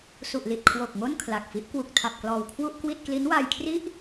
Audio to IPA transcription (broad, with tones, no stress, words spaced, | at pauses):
su˨˩ʔli˨˩t̚kʰwo˨˩k̚ ŋo˥˩nkʰla˨˩k̚fi˦˥ʔ kwu˨˩k̚tʰa˨˩p̚klɔː˨˩w kʰwu˥˩ʔkwi˥˩t̚ kli˦˥nwaː˧jkʰri˥˩ʔ